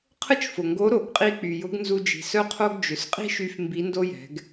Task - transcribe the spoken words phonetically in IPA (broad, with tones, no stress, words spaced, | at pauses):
qʰə˥t͡ʃfʊ˩ŋɡo˧˥ ɾo˩˧ɡqʼi˧ k͡py˩jʊ˧˥ɡnzu˧ d͡ʒi̤˩sœ˥qʰo˥ɡ d͡ʒʏ˩˧sqʼi̤˥ʃy˧f mbi˧˥ndo˥jɛ̤˩˧ɡ